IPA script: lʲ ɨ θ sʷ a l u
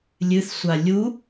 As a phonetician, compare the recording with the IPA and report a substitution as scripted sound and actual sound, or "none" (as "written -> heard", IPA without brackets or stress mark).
l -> lʲ